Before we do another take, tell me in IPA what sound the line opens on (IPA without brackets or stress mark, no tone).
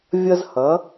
vʲ